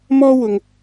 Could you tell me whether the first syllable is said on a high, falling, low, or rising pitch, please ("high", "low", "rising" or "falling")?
high